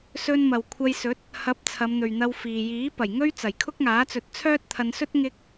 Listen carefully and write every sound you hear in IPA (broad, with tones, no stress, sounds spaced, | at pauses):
s ɵ˧ n m ɐ˨ w kʷʰ ɐ˧ j s ɵ˨˥ t̚ | h ɐ˨˥ p̚ t͡sʰ ɐ˨˧ m n̪ ɵ˨ ɥ n̪ ɐ˧ w f iː˨ j iː˨˥ p ɐ˨˩ j ŋ ɵ˥ ɥ t͡s ɐ˨˩ j kʰ ʊ˥ k̚ ŋ aː˨˥ t͡s ɵ˨˥ t̚ t͡sʰ œː˥ t̚ t̪ʰ ɐ˧ n s ɵ˥ t̚ ŋ ɪ˧ k̚